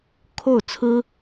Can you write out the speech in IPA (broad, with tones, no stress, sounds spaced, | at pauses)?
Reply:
kʰ o˥˩ ʊ̯ t͡sʰ ɹ̩˥